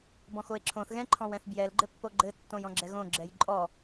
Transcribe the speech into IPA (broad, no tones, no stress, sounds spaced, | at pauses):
b ɔ̃ x o e̯ ǁʰ õ θ ɣ ɛ̃ ǃʰ ɔ̃ w ɛ̃ θ b j ɛ l ɡ͡ǃ ɘ pː o ɡ͡ǃ ɘ tː õ j ɔ̃ ɡ͡ǁ ɛ ɣ õ ɡ͡ǁ ɛ j ǃʼ ɔ